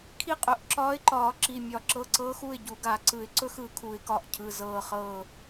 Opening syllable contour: falling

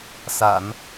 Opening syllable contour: low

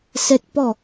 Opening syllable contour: high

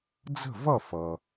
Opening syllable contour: falling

